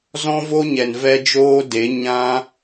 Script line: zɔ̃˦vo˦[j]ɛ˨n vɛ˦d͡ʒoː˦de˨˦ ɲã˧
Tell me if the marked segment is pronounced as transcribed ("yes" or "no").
no